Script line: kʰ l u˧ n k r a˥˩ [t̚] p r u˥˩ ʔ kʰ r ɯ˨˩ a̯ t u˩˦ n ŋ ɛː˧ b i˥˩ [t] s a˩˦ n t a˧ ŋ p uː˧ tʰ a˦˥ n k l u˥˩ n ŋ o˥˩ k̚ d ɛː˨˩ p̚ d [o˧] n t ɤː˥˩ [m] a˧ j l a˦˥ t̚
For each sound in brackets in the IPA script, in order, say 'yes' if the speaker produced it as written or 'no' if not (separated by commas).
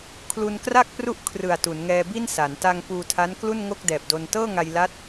no, no, yes, no